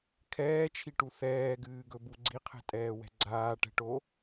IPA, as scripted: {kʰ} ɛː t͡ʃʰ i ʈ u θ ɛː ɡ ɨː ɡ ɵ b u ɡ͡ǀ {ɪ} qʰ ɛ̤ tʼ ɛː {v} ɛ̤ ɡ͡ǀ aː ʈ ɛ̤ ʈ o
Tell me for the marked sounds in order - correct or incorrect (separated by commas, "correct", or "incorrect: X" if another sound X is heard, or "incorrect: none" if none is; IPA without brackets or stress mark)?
correct, incorrect: i, incorrect: w